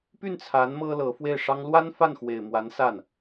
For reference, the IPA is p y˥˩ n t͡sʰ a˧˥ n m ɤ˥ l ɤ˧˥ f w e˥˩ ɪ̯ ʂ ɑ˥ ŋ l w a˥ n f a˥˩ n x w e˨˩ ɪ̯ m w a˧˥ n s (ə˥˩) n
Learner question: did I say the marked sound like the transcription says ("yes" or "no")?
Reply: no